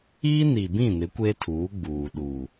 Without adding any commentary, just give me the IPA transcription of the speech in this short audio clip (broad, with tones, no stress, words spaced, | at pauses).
iː˦ni˨bĩ˦˨nɪ˨˦ kʷe˦tʰuː˨˦ ɡ͡buː˨ɗuː˨